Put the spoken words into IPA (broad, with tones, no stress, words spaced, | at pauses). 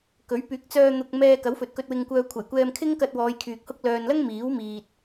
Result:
kɵ˨˥ɥpyː˨˥k̚t͡sœː˧ n̪ʊ˧k̚ mɛː˧kɐ˨˥w fɵ˨t̚kɵ˧t̚ wɪ˧ŋkʷœː˧ kʷʰɐ˨˩jkʷɛː˧mkʰɪ˥ŋkɐ˧t̚ wɔː˨˧jkʰyː˨k̚ hʊ˧k̚lœː˨nlɐ˥ŋ miː˨˥wmiː˨t̚